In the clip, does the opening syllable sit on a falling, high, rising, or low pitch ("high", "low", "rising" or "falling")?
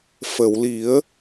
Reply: low